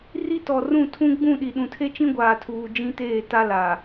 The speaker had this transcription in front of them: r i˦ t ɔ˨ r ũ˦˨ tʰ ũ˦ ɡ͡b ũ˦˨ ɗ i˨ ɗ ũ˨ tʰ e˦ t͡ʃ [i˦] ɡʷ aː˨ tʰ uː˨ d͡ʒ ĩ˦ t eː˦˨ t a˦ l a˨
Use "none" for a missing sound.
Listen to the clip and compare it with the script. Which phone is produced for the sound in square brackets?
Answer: ĩ˦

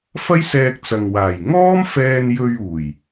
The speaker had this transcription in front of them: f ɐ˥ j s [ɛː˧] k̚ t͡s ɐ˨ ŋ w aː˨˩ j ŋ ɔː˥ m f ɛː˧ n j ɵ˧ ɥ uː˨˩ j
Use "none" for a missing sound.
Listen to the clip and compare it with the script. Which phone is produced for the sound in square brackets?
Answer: ɛː˧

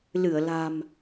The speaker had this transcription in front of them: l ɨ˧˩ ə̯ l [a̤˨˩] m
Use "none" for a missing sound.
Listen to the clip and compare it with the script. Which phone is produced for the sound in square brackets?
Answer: a̤˨˩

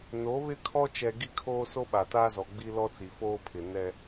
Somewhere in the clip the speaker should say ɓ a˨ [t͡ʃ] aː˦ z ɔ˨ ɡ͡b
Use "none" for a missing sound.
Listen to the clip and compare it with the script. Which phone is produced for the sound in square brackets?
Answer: t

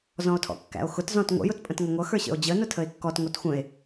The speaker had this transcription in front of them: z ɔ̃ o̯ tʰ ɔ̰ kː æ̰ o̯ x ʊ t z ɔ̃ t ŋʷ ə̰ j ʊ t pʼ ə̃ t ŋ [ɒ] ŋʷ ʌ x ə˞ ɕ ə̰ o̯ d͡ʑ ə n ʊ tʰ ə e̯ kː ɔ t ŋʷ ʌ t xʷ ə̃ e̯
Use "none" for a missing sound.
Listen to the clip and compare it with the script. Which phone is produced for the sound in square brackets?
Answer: ʌ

